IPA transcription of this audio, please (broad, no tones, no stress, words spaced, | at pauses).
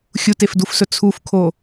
xʲutefdufsɵ t͡sʰufkʰo